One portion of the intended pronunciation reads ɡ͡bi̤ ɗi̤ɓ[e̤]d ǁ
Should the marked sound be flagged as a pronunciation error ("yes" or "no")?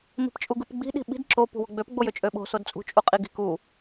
yes